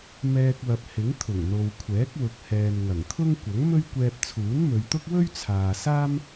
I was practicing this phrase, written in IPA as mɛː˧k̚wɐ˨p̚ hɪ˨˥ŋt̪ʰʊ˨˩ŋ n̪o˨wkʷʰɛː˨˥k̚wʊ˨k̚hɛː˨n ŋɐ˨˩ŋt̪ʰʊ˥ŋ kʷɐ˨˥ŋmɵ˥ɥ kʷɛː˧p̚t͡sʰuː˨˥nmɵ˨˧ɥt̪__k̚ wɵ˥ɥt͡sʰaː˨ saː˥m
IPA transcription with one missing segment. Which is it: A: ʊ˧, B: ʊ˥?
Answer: B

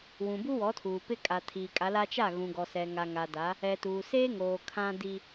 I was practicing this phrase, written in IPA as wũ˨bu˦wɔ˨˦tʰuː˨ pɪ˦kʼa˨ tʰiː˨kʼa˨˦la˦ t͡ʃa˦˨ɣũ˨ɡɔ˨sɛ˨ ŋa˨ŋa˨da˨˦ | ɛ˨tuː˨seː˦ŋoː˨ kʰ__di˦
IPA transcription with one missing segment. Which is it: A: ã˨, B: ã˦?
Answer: B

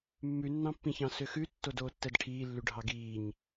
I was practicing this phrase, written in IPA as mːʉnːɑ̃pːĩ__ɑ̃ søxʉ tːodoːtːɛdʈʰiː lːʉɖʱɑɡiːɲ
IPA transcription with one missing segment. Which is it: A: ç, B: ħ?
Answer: A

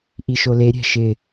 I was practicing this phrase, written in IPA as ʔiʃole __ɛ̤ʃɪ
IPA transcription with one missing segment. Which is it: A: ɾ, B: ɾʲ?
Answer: B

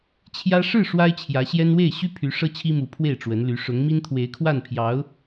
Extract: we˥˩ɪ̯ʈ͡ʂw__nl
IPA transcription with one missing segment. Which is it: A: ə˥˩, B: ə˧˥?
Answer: B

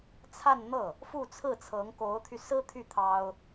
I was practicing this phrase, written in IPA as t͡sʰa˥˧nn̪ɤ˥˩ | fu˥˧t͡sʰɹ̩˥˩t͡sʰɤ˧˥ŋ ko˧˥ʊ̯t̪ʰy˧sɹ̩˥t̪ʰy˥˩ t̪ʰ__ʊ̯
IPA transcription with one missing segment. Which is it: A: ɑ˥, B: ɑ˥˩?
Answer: A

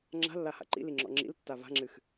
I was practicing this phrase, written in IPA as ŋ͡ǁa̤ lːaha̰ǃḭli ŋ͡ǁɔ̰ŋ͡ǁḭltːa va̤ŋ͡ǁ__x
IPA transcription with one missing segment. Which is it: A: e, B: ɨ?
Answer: B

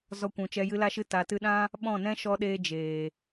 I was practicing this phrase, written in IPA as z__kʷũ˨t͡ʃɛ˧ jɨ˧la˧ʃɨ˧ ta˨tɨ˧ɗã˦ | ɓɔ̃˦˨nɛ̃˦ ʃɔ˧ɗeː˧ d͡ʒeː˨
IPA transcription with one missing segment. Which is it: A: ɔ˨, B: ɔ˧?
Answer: B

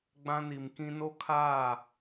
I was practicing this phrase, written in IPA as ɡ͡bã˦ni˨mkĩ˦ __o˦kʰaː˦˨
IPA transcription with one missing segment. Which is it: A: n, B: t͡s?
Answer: A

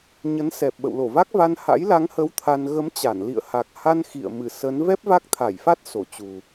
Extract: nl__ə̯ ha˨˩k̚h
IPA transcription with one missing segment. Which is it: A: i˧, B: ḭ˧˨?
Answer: B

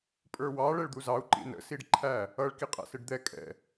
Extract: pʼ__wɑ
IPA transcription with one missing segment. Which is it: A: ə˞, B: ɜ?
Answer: A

